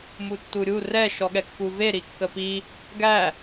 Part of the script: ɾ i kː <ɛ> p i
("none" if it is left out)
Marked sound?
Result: ə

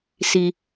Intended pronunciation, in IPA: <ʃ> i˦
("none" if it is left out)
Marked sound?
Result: s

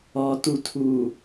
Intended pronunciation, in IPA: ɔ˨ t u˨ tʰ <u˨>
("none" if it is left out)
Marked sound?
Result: u˨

